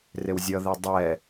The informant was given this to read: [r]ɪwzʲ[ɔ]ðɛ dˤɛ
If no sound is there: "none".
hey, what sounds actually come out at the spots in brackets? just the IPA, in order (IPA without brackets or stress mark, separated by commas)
r, ʌ